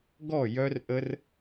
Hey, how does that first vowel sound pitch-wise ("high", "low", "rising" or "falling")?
falling